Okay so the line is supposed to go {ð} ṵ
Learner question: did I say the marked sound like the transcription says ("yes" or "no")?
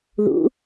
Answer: yes